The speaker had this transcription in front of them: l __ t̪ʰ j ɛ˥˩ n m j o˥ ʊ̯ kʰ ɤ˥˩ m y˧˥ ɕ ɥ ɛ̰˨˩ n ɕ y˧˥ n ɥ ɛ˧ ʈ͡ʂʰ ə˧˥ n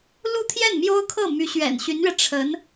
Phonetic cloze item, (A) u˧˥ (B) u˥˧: B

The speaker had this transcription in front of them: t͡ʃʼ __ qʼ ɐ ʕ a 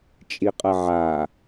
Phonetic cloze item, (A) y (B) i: B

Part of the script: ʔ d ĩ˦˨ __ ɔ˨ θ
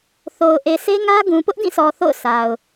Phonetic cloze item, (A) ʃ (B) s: B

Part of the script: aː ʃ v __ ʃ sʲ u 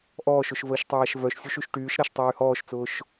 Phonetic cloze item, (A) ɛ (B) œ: B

